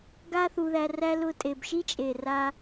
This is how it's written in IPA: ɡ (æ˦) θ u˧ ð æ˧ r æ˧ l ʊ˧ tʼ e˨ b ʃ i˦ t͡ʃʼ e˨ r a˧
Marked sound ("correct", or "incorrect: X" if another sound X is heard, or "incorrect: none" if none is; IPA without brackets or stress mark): incorrect: a˦